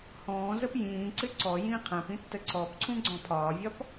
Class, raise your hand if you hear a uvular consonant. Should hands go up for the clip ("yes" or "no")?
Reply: yes